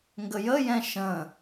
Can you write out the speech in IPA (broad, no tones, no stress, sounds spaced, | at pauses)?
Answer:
ŋ ɡ ə j ə j ɛ̃ ʃ ə̃